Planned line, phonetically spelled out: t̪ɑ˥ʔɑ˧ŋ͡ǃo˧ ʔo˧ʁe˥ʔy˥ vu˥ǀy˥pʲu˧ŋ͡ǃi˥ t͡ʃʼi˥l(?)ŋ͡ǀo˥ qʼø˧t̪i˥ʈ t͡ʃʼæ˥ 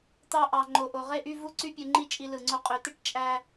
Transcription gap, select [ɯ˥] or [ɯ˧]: ɯ˧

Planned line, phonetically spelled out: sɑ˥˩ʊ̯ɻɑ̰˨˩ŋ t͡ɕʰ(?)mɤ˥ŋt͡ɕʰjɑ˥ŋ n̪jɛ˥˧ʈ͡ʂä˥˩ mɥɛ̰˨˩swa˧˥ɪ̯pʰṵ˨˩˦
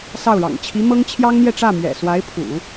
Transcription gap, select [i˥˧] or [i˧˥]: i˧˥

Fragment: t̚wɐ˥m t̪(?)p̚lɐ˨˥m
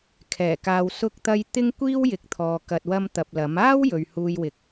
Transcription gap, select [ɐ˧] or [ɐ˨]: ɐ˧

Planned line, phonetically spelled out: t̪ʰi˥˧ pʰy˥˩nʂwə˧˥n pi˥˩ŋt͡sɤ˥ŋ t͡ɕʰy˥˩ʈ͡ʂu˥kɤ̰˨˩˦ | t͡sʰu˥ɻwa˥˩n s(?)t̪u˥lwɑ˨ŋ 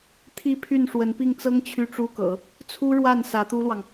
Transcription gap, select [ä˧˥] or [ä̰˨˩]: ä˧˥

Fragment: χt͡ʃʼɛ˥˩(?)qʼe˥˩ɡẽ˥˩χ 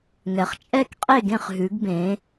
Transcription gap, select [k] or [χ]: k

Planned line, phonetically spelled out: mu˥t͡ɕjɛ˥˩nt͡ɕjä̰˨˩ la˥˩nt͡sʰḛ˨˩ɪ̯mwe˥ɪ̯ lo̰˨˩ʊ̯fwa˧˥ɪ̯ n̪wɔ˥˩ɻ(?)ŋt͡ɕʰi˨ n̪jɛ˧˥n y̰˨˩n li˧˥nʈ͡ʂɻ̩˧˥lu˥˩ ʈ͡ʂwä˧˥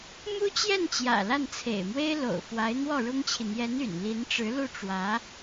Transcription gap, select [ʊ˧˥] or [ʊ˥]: ʊ˥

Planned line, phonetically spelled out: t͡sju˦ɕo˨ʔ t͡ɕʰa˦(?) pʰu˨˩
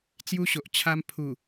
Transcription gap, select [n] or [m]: m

